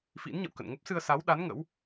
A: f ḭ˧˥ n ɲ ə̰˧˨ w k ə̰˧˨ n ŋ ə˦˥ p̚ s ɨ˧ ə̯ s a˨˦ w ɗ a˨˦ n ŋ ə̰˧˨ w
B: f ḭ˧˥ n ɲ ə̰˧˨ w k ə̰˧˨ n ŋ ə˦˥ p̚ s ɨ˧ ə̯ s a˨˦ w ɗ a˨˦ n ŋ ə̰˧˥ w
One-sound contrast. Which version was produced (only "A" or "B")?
B